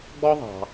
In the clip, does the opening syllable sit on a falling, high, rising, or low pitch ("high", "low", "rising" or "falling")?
high